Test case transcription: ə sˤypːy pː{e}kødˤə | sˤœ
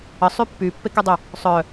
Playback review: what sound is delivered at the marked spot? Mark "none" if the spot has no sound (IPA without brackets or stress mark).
e